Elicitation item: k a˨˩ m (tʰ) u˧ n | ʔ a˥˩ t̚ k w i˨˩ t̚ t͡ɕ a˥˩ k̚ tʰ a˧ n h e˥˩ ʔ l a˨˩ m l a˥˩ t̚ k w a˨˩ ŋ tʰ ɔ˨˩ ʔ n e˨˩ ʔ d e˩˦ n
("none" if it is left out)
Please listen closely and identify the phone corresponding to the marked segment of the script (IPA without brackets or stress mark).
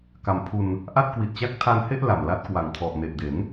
pʰ